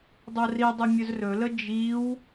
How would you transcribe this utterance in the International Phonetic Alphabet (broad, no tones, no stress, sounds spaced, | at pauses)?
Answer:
dˤ o r i dˤ o mʲ ɵ z r ɵ l ə d͡ʒ i w